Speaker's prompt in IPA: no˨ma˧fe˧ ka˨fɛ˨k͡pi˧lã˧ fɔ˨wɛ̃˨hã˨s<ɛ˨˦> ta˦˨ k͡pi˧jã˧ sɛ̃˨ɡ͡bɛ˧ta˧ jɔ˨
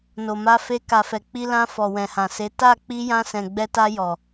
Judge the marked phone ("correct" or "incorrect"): incorrect